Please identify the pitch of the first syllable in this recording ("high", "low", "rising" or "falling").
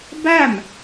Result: falling